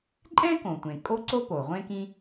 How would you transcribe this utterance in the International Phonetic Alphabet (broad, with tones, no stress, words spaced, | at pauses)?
ǃʼɛ̃˥kõ˩tʷẽ˩ kʼo˥ǀo˥po˩ ʁʷẽ˥kĩ˥